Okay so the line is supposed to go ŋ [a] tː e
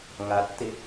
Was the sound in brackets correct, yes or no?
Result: yes